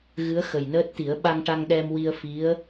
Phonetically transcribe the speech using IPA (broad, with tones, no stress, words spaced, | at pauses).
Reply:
ɣɨ˧˥ə̯xə˨˩jnəː˦˥t̚t̪i˨˩˦ə̯ ɓa˧ŋʈa˧ŋɗɛ˧mwi˧ə̯ fi˧˥ə̯